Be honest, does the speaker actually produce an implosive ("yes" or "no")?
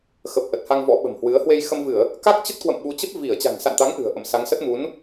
yes